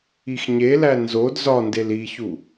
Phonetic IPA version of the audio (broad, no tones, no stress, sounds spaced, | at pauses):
i x ɲ e l æ n z o d z ɒ n d e l i ç u